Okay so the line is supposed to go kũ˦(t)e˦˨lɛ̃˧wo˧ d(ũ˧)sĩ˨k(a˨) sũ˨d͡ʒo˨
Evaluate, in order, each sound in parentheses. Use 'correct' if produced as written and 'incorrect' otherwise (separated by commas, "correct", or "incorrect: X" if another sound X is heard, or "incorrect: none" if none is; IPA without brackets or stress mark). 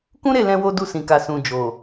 incorrect: ɾ, incorrect: u˧, correct